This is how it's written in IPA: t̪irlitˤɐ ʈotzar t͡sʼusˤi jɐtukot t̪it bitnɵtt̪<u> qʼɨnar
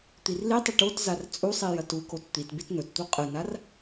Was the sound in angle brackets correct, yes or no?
yes